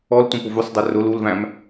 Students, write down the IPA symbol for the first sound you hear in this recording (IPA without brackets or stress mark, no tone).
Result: ɔ